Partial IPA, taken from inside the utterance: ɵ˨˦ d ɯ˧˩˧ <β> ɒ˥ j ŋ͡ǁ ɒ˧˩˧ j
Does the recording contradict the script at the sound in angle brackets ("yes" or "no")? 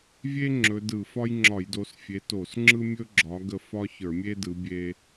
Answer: yes